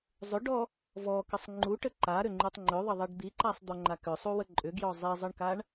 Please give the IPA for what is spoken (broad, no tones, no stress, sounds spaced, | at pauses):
zˤ ʏ ɖ ɔ | v ɔ k ə sˤ ŋ͡ǃ u ʈ ə ǃ a ɾ ʏ ŋ͡ǃ u tˤ ŋ͡ǃ ʏ ðˤ ə ðˤ i ɖ d̪ i ǃ a sˤ d̪ ɔ ŋ͡ǃ a k ʏ sˤ u w ə ǃʼ ʏ ɡ j ɔ zˤ i zˤ ə ɳ k a ɳ